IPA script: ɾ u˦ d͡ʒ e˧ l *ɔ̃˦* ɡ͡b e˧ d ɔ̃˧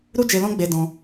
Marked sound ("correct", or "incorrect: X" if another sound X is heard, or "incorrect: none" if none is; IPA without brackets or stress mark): correct